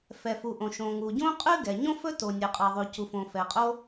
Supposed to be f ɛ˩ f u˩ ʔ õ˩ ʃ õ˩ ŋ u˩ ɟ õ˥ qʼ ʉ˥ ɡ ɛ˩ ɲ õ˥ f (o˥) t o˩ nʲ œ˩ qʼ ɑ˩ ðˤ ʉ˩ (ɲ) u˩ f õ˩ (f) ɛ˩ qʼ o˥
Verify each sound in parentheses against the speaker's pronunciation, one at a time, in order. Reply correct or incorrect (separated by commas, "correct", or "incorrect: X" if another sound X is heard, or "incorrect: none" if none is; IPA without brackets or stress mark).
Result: incorrect: ɵ˥, incorrect: c, correct